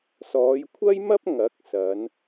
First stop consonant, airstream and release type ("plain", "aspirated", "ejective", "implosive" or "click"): aspirated